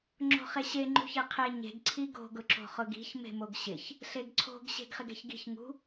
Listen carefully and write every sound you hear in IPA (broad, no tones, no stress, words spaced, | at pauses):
ŋ͡ǁo̤χeɕe ŋ͡ǃṳçeqʰe ɲe̤ɡ ǀʰiɡo̤ ɡʊǁo̤χʊɡi̤ç me̤moɡɕɪç | ɬeɡǀʰo̤ɡ ɕe̤ɡχɪɡɛ̤çɡi̤ç ŋṳ